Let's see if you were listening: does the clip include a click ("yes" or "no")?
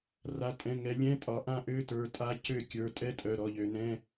no